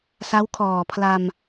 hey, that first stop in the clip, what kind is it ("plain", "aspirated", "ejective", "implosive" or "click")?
aspirated